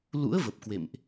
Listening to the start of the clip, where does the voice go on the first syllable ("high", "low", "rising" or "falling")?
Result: rising